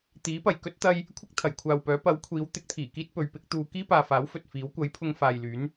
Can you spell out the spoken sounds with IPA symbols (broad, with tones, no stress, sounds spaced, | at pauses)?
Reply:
t̪ iː˨˥ p ɐ˨˩ j k ɵ˥ t̚ t̪ ɐ˧ j | kʷʰ ɪ˥ k̚ t̪ʰ ɐ˨˩ j kʷʰ aː˨ w p œː˨˥ p ɐ˨˥ w kʷʰ iː˨˥ w t̪ ɪ˨˥ k̚ t̪ʰ iː˨˩ k iː˥ t̚ p ɵ˨˧ ɥ p ɪ˨˥ k̚ t̪ uː˧ k iː˥ p aː˨ f aː˨˥ w f ɵ˨ t̚ f iː˨˥ w kʷ ɐ˨˥ j pʰ ʊ˧ ŋ f aː˨ j l yː˨˥ n